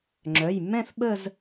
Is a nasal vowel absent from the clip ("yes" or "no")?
no